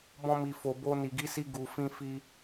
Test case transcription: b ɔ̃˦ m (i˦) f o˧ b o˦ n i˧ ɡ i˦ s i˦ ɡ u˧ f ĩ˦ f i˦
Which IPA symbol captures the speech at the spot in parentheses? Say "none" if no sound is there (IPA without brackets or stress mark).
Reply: i˧